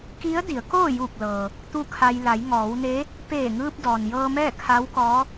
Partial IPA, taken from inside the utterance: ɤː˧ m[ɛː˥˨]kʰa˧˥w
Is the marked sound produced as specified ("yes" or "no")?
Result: yes